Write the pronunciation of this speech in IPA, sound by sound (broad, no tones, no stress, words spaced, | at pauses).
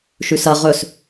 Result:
ʃʉsɐ ʁɵs